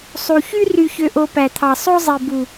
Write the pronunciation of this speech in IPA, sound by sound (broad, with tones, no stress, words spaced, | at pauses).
sˤu˨çy˦ ry˧çø˧ʔo˧ pæ˨t̪ʰɑ˨ sˤo˦zˤi˨bu˨